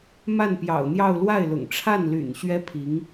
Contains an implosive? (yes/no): no